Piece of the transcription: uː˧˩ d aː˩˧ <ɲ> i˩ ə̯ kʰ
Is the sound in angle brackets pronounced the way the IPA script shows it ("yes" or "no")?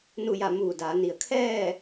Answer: no